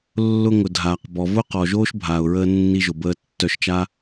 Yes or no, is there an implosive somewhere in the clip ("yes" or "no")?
no